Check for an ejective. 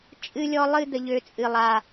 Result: present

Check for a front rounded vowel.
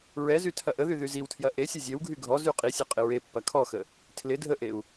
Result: present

